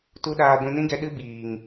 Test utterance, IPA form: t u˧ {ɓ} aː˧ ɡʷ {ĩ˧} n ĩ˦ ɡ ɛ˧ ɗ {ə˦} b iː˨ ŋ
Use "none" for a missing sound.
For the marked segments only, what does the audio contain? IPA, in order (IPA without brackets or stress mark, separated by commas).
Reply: ɗ, ĩ˧, ɨ˦